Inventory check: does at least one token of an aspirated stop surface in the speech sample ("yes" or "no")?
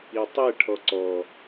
yes